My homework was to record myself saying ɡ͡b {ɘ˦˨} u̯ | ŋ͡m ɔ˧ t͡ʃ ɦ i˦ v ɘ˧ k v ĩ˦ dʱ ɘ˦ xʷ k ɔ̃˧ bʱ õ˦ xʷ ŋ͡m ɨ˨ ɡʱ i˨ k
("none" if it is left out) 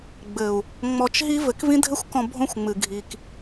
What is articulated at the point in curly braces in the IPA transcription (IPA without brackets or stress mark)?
ɘ˨